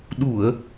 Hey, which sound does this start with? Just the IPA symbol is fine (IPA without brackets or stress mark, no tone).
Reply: ɗ